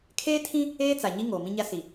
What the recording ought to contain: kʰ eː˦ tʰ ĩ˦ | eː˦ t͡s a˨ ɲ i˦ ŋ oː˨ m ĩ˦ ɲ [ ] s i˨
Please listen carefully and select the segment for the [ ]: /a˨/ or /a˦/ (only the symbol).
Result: a˦